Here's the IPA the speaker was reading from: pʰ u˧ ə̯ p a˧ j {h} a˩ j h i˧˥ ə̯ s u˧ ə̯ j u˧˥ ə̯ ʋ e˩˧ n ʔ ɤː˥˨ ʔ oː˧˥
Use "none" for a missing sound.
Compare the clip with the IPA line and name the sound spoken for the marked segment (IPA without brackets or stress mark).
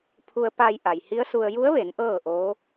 ʔ